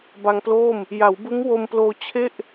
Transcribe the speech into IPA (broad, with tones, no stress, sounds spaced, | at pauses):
b a˧ ŋ p l oː˥˩ m | j a˩˦ w b ɯ˦˥ ŋ w o˧ m p l oː˧ t͡ɕʰ e˥˩ ʔ